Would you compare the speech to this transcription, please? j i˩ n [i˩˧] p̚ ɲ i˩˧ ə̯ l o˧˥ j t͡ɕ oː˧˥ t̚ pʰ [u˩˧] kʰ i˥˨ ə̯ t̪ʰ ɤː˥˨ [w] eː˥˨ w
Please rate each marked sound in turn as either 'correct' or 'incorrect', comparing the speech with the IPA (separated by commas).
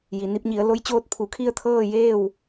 incorrect, correct, incorrect